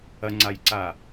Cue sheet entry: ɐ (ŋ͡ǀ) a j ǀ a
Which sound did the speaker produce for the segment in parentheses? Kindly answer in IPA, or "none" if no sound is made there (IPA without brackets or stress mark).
ŋ͡ǀ